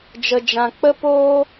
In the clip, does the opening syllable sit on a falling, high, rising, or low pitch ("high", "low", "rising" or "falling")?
low